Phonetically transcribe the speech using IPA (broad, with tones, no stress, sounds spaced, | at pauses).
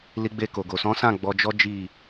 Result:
l i˧ ɡ͡b e˧ k o˨ ɡ o˨ s ɔ̃˨˦ s ã˦˨ ɡ͡b ɔ˧ d͡ʒ ɔ˦ d͡ʒ i˦˨